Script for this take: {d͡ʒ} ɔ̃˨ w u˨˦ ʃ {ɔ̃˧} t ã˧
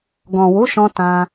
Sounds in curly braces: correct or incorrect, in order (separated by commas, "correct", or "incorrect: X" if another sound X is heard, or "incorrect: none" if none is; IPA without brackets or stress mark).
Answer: incorrect: ɡ, correct